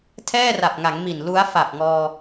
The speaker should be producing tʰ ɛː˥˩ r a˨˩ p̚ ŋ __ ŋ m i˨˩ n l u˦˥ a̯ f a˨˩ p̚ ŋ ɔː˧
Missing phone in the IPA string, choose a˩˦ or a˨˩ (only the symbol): a˩˦